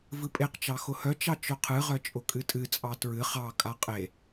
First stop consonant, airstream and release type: ejective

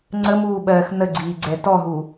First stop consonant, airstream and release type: click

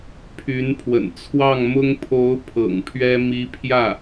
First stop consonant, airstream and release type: aspirated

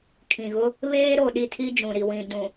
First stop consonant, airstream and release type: aspirated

